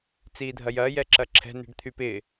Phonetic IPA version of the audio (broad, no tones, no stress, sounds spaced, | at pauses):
t͡s iː dʱ ɐ j ɐː j ɛ ǁ ɐ ǁʰ ɛ̤ n i̤ ɖ t̪ʰ y p ɪ